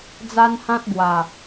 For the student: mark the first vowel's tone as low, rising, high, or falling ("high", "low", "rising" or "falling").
high